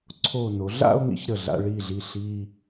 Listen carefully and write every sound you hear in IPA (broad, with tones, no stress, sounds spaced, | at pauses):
ǀʰ o˧˩ n o˩˧ ɮ a̰˥˧ o̯ ŋ ḭ˥ ç ɾ ə˧˩ ɮ a̰˧ ɭ i˧˩ ɮ i˧˩ ɬ i˧